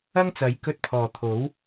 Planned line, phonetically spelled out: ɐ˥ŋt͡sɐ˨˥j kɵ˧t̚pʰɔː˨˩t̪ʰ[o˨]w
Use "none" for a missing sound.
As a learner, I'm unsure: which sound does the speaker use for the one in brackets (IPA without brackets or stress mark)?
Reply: o˨˥